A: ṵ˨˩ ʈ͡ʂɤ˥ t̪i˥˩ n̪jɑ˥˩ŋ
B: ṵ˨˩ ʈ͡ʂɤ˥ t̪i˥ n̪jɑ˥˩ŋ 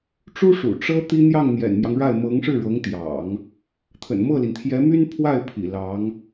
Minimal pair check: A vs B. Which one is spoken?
B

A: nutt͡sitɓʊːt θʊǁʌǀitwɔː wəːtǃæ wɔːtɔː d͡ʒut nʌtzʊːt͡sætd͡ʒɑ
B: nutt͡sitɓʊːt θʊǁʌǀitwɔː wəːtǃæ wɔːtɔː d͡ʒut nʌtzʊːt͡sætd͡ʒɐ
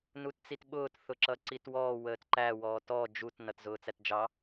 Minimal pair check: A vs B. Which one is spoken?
A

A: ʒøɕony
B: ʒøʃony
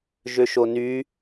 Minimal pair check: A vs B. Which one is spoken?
B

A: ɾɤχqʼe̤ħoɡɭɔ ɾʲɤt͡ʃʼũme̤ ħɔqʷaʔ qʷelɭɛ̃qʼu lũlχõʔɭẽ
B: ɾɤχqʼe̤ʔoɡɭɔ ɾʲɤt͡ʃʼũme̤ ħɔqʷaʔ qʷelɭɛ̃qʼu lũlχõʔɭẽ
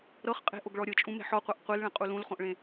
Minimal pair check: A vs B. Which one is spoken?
B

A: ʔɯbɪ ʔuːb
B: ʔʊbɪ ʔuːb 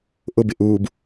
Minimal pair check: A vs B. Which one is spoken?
B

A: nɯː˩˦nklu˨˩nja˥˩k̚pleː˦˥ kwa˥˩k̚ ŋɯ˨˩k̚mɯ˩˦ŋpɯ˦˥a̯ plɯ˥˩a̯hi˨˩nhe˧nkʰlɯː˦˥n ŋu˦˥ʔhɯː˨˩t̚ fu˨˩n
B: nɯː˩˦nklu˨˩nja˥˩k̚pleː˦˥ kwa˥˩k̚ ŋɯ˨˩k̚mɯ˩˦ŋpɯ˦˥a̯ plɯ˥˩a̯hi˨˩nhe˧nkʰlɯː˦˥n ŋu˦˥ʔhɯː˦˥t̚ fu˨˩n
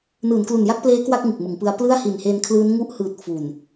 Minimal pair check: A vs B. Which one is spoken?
A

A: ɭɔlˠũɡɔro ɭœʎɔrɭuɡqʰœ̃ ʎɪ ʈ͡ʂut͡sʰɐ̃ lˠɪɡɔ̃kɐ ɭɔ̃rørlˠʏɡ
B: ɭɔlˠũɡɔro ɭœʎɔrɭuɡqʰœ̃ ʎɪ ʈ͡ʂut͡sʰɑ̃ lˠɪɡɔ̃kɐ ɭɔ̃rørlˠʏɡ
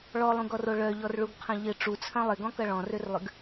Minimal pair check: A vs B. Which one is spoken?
A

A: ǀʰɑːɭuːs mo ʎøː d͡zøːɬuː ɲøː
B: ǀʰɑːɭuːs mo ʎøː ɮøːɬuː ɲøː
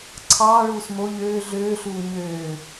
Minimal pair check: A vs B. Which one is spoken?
B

